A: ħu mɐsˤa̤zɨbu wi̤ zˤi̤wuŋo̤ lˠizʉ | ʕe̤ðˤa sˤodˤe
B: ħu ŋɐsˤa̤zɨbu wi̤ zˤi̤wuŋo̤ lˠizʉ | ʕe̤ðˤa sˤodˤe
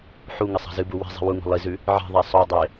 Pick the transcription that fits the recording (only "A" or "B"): B